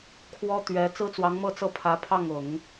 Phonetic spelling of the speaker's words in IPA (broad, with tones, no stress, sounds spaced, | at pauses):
kʰ w ɔ˥ t̪ ɥ ɛ˧˥ t͡s ɹ̩˥ t͡s w ɑ˧˥ ŋ m ɤ˥˧ t͡s ɤ˥˩ pʰ ä˧˥ pʰ ɑ˥˩ ŋ ʊ˨˩˦ ŋ